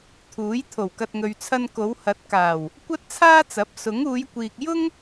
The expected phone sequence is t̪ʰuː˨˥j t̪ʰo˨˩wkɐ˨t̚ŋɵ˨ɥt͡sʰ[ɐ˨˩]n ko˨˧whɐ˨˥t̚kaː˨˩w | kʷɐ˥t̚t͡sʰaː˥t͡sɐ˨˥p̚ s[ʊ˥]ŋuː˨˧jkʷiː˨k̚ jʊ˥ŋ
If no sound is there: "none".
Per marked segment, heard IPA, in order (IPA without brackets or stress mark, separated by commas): ɐ˧, ʊ˨˥